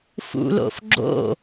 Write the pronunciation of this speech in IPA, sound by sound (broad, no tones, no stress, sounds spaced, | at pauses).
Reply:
f ṵ l o̰ f ɡ͡ǁ o̰